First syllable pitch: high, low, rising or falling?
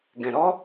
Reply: low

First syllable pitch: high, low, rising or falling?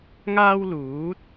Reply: high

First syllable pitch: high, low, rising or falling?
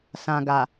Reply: low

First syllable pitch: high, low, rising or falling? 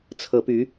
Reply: rising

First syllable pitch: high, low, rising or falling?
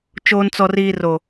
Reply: high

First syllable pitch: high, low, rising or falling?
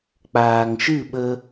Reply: low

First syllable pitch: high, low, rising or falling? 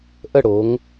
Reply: falling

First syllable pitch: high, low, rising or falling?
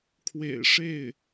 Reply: low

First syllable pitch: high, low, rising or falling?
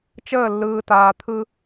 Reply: falling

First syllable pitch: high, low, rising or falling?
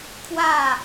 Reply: falling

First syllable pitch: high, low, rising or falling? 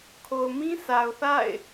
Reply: low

